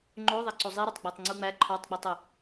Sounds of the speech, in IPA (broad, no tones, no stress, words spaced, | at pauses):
ŋ͡ǃo ðˤæǀozˤiɾotˤ ɡ͡bætˤŋ͡ǀuŋ͡mæ ǃʰɒtˤɡ͡bitˤo